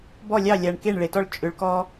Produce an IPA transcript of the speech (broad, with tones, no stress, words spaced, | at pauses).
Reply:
bɔ˦˨lʲɑ˦˨lʲa˨ɳ ke˦˨ɳɭe˨tɔ˦ɭ t͡ʃʼʏ˨˦ɭkɔ˦